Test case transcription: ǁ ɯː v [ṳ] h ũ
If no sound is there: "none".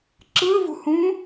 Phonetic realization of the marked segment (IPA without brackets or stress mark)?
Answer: ṳ